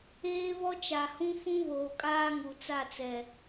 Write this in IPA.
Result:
eː˦ β ɔ˦ t͡ʃ a˨ h ũ˦ f ũ˦ β oː˨ kʼ aː˦ ŋ u˨ t͡s a˦˨ t͡s ɛ˨

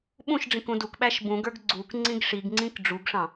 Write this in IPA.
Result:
ɓ ũ ʃ ɖ͡ʐ ĩ k ũ d u k ɓ æ ʃ b ũ ɡ ə˞ ɡ ɡ͡ǀ u k ŋ͡ǀ ĩ ɡ ʂ i ɡ ŋ͡ǀ ĩ k ɖ͡ʐ u ɡ ʂ ɑ̃

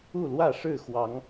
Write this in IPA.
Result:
u˥˨ l w ä˥˨ ʂ ɻ̩˥˨ x w ɑ˨˦ ŋ

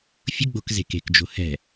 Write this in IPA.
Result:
fʲ ʊ ɡ͡b o̤ k z e̤ k e̤ k d͡ʒ o̤ h ɛ̤

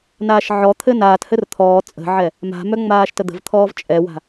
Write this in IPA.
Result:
n aː ʃ ʕ ɔ t̪ʰ ɘ n aː t h ɘ r t̪ʰ ɔː t͡sʼ ə̤ ʕ ɛ | m a̤ m œ ŋ͡m aː ʃ t ə d̪ ə̤ v t̪ʰ ɔː v t͡ʃʼ ɛ w a̤

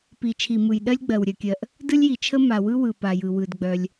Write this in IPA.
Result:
p i˩ t͡ʃʰ i˩ m ɯ˩ j ɗ ɜ˥ lʲ ɡ͡b ɜ˩ w ɾʲ œ˩ kʲ ɜ˩ ʔ | d ɯ˥ lʲ j i˩ t͡ʃʰ ə˥ m a˩ w ɯ˥ w ɯ˩ p a˩ j ɯ˩ w ɯ˩ d ɡ͡b œ˩ lʲ

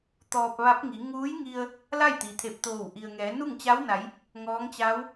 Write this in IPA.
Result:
t̪ ɔː˧ p̚ ʋ a˧˥ p̚ ŋ i˩˧ ŋ uː˧˥ j ŋ i˧ ə̯ | l a˥˨ j t̪ i˩ t̪ʰ e˧˩ p̚ t̪ oː˧˩ w ʔ i˩ ə̯ ŋ ɛː˩˧ n u˥˨ ŋ t͡ɕ a˧˥ w n a˩˧ j | ŋ ɔː˧˥ ŋ t͡ɕ a˧˥ w

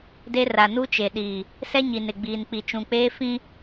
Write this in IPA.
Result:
d e˦ r a˨ n u˦ t͡ʃ e˨ ɗ iː˨ | s ɛ˦ ɲ i˨ n ɪ˨ ɡ͡b iː˨ n k͡p i˨ t͡ʃ ũ˨ k͡p eː˦ f ĩ˦

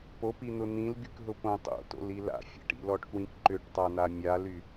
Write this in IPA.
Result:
p o p i n̪ ʊ n̪ ĩ l ɡ y k ɦ ʊ p õ tˤ o̰ t o̰ l i l a̰ fʲ a̰ ʈ ḭ l ɔ ʈ k w ĩ k ǃ ʏ ʈ tˤ a n̪ a mʲ a l y

